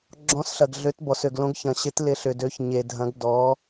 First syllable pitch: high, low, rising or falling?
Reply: rising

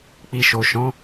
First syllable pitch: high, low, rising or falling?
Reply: low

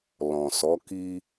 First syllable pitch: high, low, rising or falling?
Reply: low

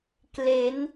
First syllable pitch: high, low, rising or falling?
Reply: rising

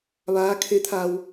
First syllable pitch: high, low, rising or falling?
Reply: rising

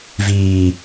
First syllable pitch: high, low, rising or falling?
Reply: low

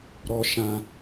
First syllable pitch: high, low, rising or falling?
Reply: high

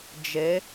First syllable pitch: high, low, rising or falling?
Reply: rising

